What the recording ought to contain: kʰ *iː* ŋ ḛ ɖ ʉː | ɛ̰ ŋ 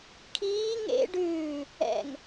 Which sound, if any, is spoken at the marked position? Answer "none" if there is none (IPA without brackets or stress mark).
iː